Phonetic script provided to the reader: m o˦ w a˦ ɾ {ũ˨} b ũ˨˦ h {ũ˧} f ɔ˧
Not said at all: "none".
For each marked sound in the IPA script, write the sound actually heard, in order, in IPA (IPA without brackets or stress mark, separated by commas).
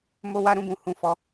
ũ˦˨, ũ˧